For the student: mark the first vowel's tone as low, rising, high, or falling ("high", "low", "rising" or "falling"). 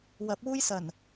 rising